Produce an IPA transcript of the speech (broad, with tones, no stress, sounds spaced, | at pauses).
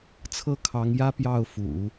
t͡sʰ ɤ˥˩ kʰ ɑ˧˥ ŋ j ä˥ p j ɑ˥˩ ʊ̯ f ṵ˨˩˦